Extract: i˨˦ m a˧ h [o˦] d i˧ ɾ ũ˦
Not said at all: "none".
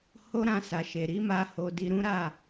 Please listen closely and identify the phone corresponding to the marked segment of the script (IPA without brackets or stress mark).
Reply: o˧